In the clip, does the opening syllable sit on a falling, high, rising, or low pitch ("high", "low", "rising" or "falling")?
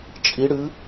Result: rising